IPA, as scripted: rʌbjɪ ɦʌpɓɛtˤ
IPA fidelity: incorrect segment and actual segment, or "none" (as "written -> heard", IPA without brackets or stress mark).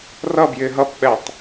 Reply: none